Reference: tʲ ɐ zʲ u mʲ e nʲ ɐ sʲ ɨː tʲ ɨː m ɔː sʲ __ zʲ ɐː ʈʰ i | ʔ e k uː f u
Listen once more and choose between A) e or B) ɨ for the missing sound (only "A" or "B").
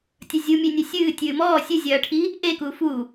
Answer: B